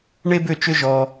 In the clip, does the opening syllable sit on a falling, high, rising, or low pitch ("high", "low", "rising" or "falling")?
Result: high